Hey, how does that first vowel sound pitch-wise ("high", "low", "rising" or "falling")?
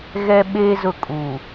high